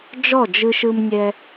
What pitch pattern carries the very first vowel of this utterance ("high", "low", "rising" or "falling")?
falling